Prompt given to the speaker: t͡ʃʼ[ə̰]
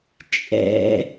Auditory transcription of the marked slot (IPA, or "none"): ɛ̰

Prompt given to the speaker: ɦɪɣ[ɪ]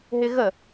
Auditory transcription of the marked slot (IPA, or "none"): ə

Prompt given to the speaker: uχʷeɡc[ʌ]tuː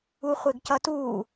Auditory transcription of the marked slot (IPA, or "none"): ʌ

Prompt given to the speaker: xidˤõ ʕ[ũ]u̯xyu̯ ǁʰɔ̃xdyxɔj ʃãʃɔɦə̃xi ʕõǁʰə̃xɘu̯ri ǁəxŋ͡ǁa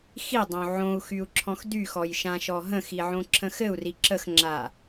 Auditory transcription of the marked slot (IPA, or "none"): õ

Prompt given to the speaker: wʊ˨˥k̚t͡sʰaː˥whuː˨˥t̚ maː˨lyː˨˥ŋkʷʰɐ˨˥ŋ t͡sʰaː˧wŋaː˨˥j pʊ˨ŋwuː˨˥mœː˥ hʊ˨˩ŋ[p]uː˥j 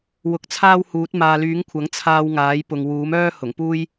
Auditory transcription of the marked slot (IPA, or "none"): p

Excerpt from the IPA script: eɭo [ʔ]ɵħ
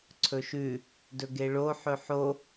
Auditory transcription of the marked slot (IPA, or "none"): ħ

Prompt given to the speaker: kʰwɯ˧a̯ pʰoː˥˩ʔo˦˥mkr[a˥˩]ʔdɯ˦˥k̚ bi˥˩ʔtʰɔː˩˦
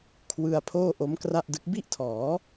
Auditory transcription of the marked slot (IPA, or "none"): a˥˩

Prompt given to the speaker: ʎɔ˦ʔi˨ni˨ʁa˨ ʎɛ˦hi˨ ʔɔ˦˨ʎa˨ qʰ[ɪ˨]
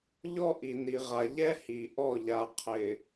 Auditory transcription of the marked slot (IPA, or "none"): ɪ˨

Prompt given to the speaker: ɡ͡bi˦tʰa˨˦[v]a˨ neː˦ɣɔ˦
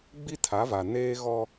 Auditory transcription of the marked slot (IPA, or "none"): v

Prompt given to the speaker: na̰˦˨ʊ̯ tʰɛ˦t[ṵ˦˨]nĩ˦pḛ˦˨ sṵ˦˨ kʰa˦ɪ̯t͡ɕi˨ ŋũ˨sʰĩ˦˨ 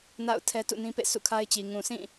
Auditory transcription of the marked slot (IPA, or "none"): ṵ˦˨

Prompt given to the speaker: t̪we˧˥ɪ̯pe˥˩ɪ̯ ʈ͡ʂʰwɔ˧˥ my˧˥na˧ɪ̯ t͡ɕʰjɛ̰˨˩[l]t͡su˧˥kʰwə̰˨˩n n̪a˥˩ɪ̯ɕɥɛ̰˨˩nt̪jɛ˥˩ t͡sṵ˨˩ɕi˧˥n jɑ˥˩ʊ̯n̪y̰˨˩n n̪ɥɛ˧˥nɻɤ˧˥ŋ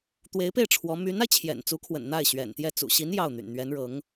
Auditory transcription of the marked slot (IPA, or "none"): n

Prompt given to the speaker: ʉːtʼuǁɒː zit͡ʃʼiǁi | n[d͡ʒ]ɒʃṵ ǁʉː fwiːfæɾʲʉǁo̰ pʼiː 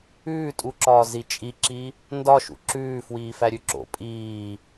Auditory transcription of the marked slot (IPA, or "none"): d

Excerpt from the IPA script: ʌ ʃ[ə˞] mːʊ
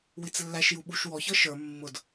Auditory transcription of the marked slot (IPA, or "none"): ə˞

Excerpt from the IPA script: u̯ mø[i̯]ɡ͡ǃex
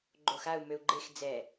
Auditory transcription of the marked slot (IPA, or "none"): u̯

